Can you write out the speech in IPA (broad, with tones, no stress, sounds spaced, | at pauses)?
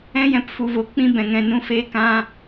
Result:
ɛ̃˦ j ɛ̃˧ p f u˨ v o˨ k͡p ĩ˦ b ɛ̃˨ ŋ ɛ̃˨ n ũ˧ f eː˧ k ã˧